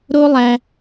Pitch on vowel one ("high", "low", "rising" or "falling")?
high